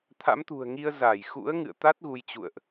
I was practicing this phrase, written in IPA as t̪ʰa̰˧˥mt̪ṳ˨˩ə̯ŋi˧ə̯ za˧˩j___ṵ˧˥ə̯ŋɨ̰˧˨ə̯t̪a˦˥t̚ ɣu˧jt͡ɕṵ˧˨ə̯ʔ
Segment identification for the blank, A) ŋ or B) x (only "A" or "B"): B